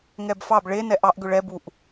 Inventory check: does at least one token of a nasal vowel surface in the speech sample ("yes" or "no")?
no